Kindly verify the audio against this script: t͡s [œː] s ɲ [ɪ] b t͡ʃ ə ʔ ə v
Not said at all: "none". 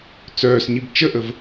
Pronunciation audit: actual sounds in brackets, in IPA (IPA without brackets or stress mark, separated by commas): œː, i